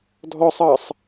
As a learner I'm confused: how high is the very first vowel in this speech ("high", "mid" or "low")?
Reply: mid